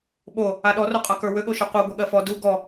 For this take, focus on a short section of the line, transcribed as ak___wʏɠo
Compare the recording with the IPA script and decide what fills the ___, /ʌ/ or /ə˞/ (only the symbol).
ə˞